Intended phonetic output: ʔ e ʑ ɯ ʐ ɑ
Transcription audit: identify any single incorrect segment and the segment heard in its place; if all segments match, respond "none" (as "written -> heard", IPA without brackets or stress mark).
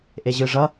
ɑ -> ʌ